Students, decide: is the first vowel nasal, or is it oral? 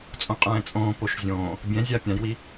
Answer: nasal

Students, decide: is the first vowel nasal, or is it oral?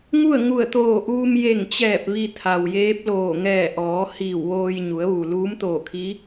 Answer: oral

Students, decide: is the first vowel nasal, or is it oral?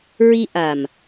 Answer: oral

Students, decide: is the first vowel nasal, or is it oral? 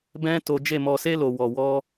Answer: nasal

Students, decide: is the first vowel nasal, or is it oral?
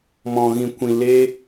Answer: nasal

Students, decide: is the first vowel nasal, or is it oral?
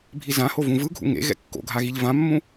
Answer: oral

